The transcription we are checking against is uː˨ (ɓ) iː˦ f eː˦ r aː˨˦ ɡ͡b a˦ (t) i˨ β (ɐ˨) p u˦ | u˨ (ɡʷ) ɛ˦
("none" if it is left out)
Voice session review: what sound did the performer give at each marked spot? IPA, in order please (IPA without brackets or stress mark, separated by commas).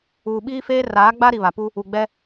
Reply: ɓ, ɾ, a˨, ɡ͡b